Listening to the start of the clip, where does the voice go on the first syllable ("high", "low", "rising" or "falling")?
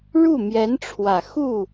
falling